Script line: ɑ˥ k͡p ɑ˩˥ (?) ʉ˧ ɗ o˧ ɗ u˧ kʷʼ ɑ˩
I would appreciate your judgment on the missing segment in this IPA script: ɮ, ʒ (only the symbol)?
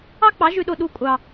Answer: ʒ